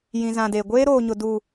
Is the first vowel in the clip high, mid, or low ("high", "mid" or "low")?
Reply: high